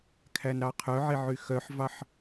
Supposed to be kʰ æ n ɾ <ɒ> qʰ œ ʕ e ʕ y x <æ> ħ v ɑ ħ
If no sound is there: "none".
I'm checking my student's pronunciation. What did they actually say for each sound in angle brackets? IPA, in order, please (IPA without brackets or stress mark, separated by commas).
ɑ, œ